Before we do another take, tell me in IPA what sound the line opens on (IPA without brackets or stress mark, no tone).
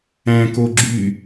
æ̃